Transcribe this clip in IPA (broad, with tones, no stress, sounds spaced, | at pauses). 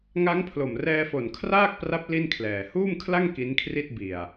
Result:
ŋ a˦˥ ŋ pʰ l o˨˩ m r ɛː˧ f o˨˩ n kʰ r aː˥˩ k̚ p r a˦˥ p̚ l i˥˩ n kʰ l ɛː˨˩ h uː˥˩ m kʰ l a˥˩ ŋ k i˦˥ n kʰ r i˥˩ t̚ b i˨˩ a̯